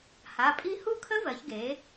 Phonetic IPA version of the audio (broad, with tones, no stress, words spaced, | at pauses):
ha˩˧˩pʼi˥˧ hu˥˧kʰə˦˥vɜ˩˧çɡe˩˧